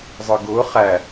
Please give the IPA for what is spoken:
zˤ ə˞ ɡ ʊː χ æ

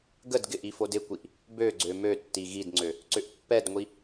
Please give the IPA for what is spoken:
ɡ ə d ɡ ɪ ʔ i f o d ɪ kʷ i ʔ | b ø ɡ͡ǀ ø m ø tː i ɣ i d ŋ͡ǀ ø | ǀ ʏ ʔ pː ɛ d ŋʷ i

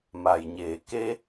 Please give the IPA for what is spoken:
m a˩ j ɲ eː˩ k e˧

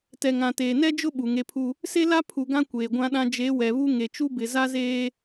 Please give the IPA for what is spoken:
t ɛ˨ ŋ ã˨ t eː˨ n ɛ˦ d͡ʒ ʊ˦ ɓ u˨ ŋ e˦ pʰ u˦ | s e˦ l a˦ pʰ u˨ ɡ ã˦ kʷ eː˨ ɡʷ ã˦ ɗ ã˦ d͡ʒ e˨˦ w ɛ˨ β u˦ ŋ e˨ t͡ʃ u˦ b ɪ˨ z a˦ z eː˦

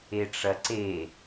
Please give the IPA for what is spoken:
e ʈ͡ʂ ɐ ǀ e

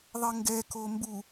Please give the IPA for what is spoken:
ðˤ ɘ ŋ ɡ ɛ k o m b u

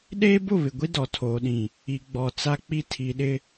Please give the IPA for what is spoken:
ɗ eː˦ b ʊ˦˨ β ɪ˨ ɡʷ i˦ d ɔ˨ tʰ oː˨ ɗ ĩ˨ | i˨ ɡ͡b ɔ˨ t͡s a˦ k͡p i˦ tʰ i˨ ɗ ɪ˦

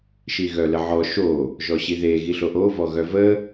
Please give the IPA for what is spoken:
ʃ i ɣ œ l ə ʕ ɔ ʃ o | ʒ ɔ ɕ i ð e ɣ i ɬ o ʔ o v ɔ ɣ œ v ə

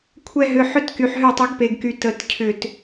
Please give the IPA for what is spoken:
kʷʰ ɛ˧ ɦ ʏ˩˧˩ ħ ø˧ t k y˩ ħ ɦ ø˧˩ tˤ ʏ˨˩˦ ɡ p e˩ ɡ k y˩ t ə˨˩˦ t cʰ ʏ˧˩ t

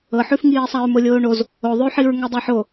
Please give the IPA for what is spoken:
ɤ ħ ʉ f ŋ iː sˤ a ɹ m o lʲ oː ɳ o z | o ðˤ ʉ ħ i ɹ ŋ ɛ dˤ ɛ ħ o

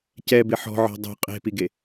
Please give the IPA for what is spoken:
c ɛ b ɪ ħ ɔ̤ ʕ ɔ̤ dˤ o̤ qʼ e̤ p i ɡ e

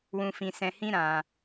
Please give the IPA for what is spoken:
w ũ˧ f ĩ˧ s ɛ̃˧ h ĩ˦ ɾ ã˧

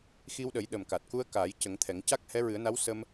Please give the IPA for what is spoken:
x i˧ w ɗ ə˨˩˦ j ɗ ə˨˩ m k a˨˩ t̚ k u˧ ə̯ k aː˨˩˦ j c ə˨˩˦ ŋ t̪ʰ ɛ˨˩˦ ŋ c a˦˥ k̚ h ɛ˧˥ ɹ ɨ˨˩˦ ə̯ n a˧˥ w s ə˧ m

